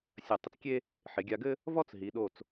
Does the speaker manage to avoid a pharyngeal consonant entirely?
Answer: no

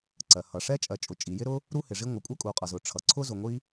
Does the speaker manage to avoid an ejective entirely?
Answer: no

